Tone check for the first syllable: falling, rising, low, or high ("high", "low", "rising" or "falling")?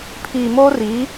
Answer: low